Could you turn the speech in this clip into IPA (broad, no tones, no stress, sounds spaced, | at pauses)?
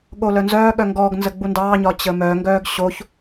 ɠ o l œ n z œː ɠ œ ŋ ɡ ɔ ɡ n z ə ɡ͡b u n d ɑː ɲ ɒ t͡ɕ ə m œː ŋ ɡ œː ɡ ɕ o ç